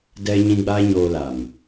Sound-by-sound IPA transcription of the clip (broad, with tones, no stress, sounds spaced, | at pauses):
d ɛ˧ ɲ ĩ˧ ɡ͡b aː˦ ɲ oː˧ l a˨ m